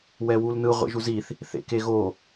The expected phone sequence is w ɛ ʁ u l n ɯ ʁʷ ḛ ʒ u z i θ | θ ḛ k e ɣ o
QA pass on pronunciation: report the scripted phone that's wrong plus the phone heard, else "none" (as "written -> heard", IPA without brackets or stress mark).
ʁ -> w